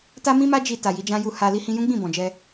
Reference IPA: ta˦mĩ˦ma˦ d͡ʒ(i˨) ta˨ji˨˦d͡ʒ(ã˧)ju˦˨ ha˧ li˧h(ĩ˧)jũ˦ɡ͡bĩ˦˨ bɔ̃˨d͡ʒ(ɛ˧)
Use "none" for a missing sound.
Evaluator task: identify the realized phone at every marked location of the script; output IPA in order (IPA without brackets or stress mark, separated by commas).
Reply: i˧, ã˦, ĩ˧, ɛ˧